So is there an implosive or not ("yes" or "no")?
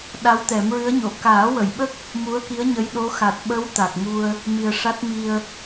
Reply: yes